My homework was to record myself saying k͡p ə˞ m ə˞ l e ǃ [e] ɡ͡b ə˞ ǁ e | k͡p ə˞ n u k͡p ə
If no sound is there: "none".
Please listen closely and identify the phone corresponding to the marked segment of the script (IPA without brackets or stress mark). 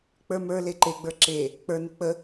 e